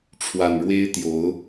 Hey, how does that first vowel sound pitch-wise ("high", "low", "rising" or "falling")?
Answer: low